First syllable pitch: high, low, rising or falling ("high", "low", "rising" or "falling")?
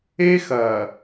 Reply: high